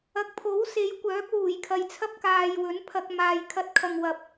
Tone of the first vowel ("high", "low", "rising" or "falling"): rising